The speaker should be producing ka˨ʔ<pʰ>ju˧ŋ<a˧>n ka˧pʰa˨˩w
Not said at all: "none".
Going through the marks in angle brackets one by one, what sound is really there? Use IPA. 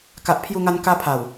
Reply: pʰ, a˧

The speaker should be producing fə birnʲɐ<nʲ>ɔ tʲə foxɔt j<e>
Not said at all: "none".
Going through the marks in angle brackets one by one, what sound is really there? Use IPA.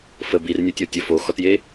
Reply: tʲ, e

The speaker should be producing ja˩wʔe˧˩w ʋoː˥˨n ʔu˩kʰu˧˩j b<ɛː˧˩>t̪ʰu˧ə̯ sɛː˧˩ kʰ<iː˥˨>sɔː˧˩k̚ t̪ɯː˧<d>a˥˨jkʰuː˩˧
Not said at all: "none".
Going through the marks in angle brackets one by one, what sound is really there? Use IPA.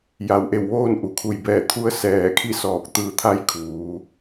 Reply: ɛː˧˩, i˥˨, t̪ʰ

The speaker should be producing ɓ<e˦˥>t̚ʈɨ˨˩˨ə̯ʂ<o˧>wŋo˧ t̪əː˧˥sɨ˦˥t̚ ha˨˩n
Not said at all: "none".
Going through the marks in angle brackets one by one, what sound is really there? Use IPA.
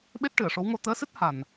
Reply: e˦˥, o˧˥

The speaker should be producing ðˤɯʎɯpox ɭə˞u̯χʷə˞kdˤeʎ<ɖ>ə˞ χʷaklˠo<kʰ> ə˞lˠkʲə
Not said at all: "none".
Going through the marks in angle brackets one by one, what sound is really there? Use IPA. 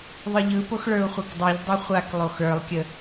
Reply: dˤ, x

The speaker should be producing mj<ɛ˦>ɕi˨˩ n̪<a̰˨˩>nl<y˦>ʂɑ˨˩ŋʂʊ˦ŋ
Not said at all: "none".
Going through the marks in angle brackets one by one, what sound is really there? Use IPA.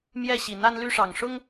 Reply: ɛ˥˨, a˦, y˦

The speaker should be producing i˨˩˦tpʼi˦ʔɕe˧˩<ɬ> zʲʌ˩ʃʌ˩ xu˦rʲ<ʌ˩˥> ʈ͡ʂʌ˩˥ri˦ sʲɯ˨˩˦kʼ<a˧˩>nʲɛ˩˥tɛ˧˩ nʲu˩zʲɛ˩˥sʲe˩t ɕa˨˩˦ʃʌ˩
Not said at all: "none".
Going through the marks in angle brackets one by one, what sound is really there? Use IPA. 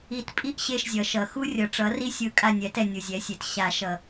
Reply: ʃ, ʌ˩˥, a˧˩

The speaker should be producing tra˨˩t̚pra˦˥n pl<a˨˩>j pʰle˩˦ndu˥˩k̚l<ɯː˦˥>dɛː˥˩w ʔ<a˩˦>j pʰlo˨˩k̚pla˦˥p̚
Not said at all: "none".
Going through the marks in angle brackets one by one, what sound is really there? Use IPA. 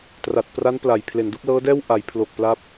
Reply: a˨˩, ɤː˦˥, a˩˦

